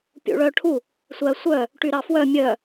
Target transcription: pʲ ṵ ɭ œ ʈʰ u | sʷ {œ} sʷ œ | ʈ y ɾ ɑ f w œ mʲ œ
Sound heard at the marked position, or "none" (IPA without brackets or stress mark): æ